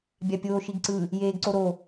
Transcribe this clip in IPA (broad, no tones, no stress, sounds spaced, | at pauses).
bʲ a pʲ oː ʃ i ɡ ǀ ɯ | j eː ɡ ǀ o ɾ o